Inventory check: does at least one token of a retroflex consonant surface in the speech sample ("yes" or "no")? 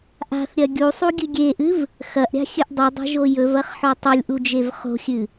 no